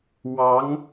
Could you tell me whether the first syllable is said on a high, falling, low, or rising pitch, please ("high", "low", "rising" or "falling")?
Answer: rising